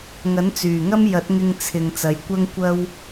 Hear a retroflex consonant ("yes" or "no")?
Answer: no